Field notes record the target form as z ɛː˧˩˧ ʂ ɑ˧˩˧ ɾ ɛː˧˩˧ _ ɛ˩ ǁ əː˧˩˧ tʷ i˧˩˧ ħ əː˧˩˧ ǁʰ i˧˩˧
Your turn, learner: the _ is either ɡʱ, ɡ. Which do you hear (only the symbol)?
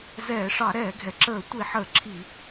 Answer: ɡʱ